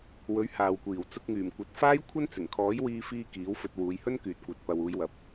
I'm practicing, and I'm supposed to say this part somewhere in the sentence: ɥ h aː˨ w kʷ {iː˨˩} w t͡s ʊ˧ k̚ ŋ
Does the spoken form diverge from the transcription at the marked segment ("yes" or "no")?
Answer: no